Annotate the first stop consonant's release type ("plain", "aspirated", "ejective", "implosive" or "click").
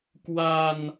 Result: plain